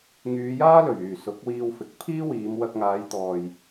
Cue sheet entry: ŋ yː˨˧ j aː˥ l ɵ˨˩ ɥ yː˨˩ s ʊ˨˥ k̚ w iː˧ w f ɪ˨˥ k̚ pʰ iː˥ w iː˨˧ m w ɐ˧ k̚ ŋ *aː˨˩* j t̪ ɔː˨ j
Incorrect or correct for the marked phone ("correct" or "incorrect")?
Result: incorrect